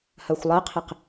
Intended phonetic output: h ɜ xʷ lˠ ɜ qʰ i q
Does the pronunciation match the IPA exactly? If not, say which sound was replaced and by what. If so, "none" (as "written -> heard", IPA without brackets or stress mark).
none